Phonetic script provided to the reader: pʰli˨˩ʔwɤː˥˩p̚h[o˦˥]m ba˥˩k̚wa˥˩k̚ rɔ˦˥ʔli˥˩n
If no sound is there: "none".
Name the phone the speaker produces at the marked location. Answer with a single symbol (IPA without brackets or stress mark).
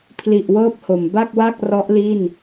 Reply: o˩˦